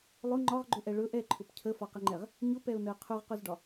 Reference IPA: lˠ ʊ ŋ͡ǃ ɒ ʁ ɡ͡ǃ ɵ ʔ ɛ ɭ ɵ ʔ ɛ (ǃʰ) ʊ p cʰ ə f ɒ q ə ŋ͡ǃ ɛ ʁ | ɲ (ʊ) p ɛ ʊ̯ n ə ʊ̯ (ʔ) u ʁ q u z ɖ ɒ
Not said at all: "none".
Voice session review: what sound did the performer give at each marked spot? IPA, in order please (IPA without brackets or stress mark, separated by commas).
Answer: ǃʰ, ʊ, qʰ